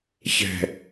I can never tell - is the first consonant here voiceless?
yes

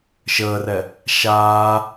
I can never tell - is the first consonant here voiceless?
yes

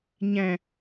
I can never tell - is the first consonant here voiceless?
no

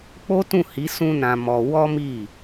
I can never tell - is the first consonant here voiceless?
yes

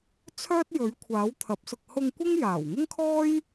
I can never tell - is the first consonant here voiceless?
yes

